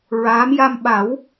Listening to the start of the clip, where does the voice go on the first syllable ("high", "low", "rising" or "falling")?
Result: rising